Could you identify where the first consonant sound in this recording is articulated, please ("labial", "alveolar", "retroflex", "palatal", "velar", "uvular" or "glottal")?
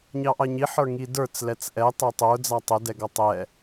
palatal